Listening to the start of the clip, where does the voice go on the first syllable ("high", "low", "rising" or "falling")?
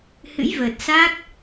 rising